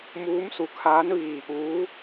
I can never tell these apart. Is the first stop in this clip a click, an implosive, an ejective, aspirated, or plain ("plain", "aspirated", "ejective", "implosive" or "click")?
aspirated